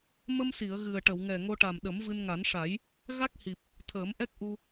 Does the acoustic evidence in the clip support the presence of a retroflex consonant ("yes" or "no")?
yes